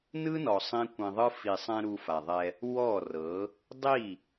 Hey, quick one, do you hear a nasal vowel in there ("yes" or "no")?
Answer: yes